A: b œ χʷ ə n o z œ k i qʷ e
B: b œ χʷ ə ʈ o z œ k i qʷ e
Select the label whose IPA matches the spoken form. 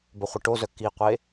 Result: B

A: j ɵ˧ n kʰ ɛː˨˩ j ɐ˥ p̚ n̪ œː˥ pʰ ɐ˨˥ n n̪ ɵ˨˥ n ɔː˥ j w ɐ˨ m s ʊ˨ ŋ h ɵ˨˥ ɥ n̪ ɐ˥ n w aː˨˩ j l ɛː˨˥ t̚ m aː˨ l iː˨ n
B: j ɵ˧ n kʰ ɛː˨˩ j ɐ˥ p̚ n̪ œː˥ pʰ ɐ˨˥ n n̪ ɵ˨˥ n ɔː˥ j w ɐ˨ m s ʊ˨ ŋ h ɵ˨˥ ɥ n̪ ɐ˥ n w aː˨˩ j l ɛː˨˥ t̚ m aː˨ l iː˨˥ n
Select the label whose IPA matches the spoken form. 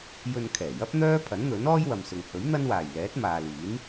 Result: B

